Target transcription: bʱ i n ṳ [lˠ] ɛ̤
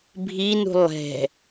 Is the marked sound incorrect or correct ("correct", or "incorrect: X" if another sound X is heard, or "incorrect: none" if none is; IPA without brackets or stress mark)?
correct